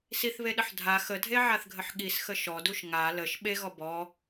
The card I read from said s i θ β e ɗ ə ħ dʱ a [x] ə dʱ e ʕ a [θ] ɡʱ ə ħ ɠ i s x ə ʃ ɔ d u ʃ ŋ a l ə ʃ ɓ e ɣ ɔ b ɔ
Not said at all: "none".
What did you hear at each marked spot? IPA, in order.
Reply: x, θ

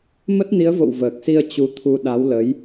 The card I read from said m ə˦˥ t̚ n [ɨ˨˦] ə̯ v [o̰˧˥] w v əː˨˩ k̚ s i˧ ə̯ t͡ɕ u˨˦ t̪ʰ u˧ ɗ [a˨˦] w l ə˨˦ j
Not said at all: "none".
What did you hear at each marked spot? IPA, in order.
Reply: i˨˦, o̰˧˨, a˨˦

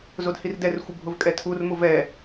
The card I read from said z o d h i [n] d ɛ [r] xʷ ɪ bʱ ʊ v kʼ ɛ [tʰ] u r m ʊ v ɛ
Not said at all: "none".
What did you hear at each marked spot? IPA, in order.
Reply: r, r, tʰ

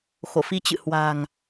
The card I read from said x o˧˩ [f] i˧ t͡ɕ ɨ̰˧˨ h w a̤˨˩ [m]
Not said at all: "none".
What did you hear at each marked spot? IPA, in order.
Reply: f, ŋ

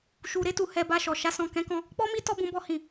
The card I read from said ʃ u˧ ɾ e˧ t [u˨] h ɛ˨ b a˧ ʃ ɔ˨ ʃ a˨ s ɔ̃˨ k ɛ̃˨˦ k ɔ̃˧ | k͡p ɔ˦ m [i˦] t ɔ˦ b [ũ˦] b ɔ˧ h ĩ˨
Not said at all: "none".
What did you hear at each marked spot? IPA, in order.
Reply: u˨, i˦, ũ˧

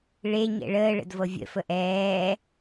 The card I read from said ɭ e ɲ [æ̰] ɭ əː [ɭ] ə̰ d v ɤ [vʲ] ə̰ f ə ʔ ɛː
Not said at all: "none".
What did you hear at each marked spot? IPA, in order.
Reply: ɛ̰, ɭ, vʲ

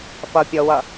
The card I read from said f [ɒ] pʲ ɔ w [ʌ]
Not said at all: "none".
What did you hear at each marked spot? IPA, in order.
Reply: ʌ, ʌ

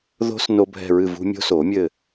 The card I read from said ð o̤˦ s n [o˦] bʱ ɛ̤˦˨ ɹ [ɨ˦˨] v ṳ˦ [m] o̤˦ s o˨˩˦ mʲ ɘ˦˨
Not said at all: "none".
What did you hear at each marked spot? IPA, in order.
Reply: o˦, ɨ˦˨, mʲ

